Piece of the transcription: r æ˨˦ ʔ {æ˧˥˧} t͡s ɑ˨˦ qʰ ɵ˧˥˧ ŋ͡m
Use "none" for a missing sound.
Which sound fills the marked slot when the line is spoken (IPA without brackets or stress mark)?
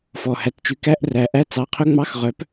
æ˧˥˧